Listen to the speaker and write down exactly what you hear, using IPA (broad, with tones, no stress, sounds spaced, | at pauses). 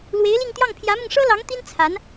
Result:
l w e˧˥ ɪ̯ l i˥˧ ŋ t̪ j ɑ˥˩ ŋ pʰ j ä˧˥ m ʊ˧ ŋ ʂ ɤ˥ l ɑ˧˥ ŋ t̪ i˥ n t͡sʰ a˧˥ n